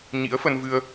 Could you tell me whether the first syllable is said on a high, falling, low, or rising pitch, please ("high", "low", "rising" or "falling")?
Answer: rising